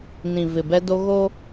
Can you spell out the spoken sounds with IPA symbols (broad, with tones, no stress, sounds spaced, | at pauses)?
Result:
n ĩ˨ v ɪ˨ b ɛ˦ d o˦ ɣ o˦